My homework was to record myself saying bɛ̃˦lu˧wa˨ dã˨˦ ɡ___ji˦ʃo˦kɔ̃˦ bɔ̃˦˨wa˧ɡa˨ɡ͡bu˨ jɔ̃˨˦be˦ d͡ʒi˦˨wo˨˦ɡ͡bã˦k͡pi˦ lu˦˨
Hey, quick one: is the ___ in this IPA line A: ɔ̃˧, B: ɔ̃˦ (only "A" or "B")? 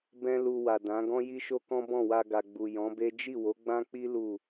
B